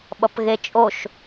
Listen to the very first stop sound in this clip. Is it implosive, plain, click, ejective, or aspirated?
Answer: implosive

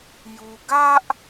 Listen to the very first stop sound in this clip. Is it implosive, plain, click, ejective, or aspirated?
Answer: plain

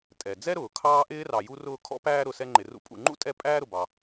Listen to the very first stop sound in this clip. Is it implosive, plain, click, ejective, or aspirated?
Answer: ejective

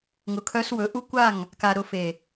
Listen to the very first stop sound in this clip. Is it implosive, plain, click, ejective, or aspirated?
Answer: aspirated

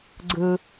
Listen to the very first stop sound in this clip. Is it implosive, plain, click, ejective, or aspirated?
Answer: click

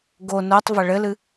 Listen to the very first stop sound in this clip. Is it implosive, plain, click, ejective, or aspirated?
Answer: plain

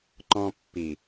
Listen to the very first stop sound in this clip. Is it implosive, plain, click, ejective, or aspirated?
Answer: click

